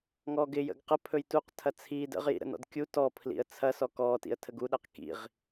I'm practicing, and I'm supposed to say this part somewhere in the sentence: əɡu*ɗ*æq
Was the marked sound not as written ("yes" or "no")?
no